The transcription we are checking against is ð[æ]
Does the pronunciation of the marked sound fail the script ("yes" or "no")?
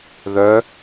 yes